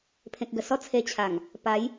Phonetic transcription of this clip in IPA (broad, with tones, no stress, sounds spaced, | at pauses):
pʰ ẽ˨ k̚ ɡ ə˨˩ s ɔ˦ t͡sʰ e˧ t͡ɕʰ a˨˩ ŋ | p a˨˦ j